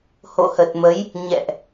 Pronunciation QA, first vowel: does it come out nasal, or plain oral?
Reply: oral